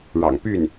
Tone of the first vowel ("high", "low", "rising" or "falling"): low